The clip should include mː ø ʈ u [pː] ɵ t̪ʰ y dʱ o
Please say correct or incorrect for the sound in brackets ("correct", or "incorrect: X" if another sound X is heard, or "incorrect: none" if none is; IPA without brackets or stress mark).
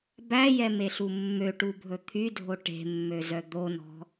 incorrect: bʱ